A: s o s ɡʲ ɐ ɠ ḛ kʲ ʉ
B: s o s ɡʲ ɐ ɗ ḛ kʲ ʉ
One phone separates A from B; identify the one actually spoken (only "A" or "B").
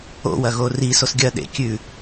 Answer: B